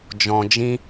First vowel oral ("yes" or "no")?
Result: no